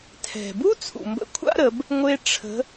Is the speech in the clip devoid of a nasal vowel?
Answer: yes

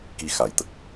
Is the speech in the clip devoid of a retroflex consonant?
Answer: yes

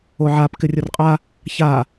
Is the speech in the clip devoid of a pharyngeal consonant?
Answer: no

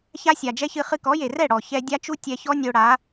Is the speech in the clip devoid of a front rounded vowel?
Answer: yes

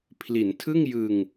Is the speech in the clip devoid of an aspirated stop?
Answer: no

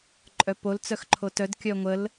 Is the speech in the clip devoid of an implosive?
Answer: yes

